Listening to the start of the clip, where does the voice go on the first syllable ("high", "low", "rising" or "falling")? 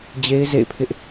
high